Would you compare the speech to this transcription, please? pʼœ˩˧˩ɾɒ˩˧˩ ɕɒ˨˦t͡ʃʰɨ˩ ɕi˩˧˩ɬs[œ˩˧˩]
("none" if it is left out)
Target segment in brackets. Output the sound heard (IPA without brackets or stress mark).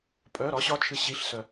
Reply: œ˩